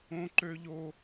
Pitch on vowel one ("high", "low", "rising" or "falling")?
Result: high